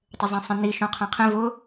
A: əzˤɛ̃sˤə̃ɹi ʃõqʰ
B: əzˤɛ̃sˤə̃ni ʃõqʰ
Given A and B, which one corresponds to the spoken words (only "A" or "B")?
B